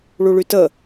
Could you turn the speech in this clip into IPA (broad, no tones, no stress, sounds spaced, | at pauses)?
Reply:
ɭ u ɭ y t ə